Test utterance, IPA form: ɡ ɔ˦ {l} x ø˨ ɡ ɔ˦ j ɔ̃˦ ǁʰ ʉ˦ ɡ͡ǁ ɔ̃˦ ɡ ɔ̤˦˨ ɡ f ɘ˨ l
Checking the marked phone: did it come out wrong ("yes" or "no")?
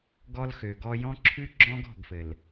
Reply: no